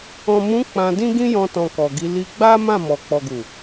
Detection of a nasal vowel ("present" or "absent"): present